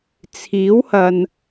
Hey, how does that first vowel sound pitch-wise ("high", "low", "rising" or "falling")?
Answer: rising